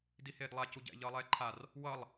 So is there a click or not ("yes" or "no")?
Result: yes